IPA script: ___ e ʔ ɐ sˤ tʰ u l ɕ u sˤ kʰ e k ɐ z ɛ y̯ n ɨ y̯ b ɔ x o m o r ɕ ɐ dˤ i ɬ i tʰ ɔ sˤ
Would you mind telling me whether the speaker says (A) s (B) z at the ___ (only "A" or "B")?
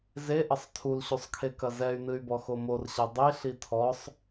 B